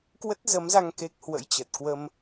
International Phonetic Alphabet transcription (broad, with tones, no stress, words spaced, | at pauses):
kwə˦˥t̚zə˨˦mza˧ŋ ke˦˥k̚ hwə̰˧˥jt͡ɕə˨˩t̚ kwə˧m